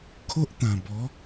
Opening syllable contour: high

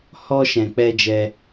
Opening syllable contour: high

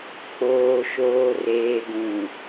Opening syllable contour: low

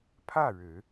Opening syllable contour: falling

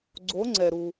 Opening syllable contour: rising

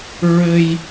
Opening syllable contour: high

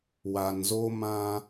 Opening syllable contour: low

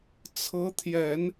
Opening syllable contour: rising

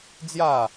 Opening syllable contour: falling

